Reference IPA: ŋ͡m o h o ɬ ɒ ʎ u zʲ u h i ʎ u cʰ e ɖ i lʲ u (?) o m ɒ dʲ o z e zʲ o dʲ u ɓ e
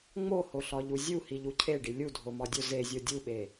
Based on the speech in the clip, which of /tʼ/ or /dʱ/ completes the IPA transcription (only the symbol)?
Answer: dʱ